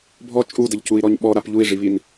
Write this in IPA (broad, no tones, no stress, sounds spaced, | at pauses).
bʱ ɔ t͡ʃʼ u d ə ʎ c u i̯ ɾ ɔ ɲ ɓ ɔ ɾ a p ʎ u i̯ ʐ i β i n